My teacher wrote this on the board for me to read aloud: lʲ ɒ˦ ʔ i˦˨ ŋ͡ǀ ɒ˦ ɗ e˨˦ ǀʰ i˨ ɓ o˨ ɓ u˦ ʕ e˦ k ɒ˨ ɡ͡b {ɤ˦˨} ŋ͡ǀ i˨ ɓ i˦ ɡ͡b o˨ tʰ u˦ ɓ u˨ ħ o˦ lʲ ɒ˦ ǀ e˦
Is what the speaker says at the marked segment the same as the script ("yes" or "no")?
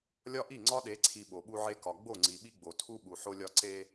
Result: no